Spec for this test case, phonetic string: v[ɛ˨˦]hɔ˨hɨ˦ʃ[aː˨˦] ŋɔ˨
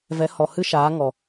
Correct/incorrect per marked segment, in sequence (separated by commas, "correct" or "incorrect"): correct, correct